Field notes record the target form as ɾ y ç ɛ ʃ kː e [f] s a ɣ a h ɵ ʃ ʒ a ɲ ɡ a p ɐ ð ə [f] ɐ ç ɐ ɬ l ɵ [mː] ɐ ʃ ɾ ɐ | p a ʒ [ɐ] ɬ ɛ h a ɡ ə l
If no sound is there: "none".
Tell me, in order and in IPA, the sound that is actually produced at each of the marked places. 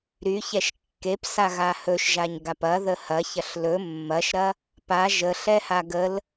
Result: p, h, mː, ə

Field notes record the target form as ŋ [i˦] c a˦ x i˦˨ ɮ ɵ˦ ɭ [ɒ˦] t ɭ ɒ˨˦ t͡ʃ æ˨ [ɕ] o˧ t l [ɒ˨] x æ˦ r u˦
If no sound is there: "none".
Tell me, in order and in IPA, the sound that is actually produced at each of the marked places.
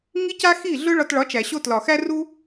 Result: i˦, ɒ˧, ɕ, ɒ˨

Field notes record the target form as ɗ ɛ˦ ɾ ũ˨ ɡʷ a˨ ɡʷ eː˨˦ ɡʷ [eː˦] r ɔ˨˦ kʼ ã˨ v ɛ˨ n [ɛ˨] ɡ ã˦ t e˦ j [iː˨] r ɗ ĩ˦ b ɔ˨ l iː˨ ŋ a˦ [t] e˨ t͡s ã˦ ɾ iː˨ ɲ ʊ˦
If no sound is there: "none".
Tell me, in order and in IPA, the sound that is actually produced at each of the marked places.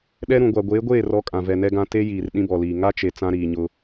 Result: eː˦˨, ɛ˦, iː˨, t͡ʃ

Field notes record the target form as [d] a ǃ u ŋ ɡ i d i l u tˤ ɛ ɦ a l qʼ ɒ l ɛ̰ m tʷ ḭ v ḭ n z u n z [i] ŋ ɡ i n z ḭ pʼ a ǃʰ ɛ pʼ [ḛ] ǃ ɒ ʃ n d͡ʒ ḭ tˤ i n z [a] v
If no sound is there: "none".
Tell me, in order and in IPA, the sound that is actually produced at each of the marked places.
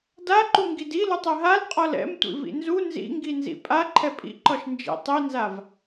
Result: d, ḭ, ḭ, a

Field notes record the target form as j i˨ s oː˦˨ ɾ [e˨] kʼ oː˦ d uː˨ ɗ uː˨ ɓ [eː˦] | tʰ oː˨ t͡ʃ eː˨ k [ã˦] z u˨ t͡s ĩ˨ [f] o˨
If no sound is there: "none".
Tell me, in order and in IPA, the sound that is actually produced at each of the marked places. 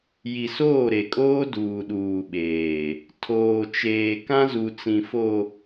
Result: e˨, eː˨, ã˦, f

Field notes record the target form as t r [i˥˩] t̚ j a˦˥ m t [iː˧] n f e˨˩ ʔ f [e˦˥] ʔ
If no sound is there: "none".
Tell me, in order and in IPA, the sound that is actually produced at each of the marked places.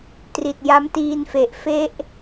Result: i˨˩, iː˧, e˦˥

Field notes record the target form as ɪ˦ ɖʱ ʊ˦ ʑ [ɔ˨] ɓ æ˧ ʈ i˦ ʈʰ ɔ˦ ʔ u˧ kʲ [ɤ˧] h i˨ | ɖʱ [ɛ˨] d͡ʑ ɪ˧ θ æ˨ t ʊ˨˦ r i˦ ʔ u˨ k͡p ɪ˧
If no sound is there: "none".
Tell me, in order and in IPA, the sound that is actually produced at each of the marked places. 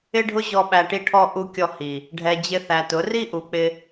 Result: ɔ˧, ɔ˧, ɛ˨

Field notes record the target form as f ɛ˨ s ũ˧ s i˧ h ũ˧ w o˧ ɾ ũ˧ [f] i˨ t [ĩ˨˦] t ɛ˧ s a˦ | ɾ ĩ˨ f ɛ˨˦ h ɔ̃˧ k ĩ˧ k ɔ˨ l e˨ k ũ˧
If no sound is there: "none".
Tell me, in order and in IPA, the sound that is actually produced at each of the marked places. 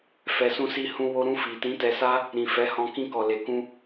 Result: f, ĩ˨˦

